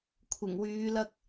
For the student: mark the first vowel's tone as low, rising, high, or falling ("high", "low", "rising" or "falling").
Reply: low